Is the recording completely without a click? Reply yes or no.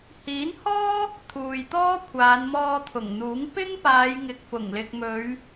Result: yes